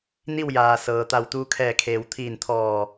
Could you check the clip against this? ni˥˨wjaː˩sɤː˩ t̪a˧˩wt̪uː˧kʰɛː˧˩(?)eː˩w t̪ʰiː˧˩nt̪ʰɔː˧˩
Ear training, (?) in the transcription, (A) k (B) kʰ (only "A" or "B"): B